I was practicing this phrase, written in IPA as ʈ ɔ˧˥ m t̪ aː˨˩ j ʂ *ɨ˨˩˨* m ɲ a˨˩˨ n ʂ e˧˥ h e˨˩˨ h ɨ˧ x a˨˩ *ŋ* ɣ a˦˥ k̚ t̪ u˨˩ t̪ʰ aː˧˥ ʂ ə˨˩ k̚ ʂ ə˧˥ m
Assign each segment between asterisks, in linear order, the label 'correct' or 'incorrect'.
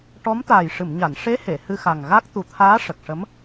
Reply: correct, correct

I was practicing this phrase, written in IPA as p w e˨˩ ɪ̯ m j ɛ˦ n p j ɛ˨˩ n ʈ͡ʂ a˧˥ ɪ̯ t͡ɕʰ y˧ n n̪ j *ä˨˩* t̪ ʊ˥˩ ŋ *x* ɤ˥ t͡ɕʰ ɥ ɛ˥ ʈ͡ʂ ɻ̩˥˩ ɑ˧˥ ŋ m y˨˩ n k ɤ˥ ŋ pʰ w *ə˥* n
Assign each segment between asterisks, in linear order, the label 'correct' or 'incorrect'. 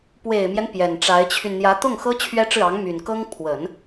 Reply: incorrect: ä˧˥, correct, incorrect: ə˨˩˦

